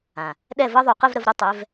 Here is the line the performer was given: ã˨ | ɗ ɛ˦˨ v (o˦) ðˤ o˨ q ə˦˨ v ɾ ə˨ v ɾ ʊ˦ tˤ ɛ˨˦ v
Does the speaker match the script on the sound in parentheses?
no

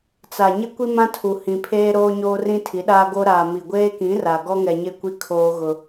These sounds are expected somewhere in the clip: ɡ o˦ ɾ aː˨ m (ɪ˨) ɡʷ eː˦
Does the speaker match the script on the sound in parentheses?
no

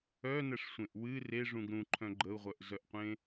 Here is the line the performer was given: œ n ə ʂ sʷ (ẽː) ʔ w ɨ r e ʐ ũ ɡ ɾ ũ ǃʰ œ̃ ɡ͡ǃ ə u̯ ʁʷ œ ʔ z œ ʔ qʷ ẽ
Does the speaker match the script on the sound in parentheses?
no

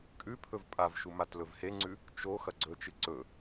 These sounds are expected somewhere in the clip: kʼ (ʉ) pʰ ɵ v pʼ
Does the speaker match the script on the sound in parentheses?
yes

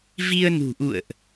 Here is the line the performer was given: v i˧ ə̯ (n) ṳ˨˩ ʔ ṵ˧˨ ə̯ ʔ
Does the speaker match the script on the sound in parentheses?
yes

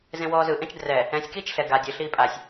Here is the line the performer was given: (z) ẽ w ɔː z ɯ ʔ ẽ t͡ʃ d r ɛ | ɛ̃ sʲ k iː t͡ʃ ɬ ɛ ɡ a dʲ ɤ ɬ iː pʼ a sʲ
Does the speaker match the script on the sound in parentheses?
yes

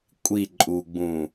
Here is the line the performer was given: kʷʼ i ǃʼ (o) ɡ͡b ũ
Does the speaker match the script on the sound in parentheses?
no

